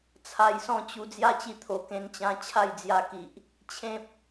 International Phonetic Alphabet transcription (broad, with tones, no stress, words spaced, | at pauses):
t͡sʰa˧jsɔ̃˥˧t͡ɕu˧ d͡zja˦t͡ɕi˧t̪ʰo˨˩ kẽ˧nt͡ɕã˧ t͡ɕʰa˥˧jd͡zja˧ki˨ʔ | t͡ɕʰẽ˦p̚